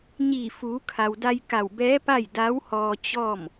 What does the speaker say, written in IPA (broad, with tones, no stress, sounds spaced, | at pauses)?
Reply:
ɲ iː˧˩ f uː˩˧ kʰ a˩ w d a˧ j k a˧˩ w b ɛː˧˥ p a˥˨ j d a˧˥ w h ɔː˧ t͡ɕ ɔː˥˨ m